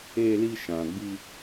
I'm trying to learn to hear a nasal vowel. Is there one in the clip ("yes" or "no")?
yes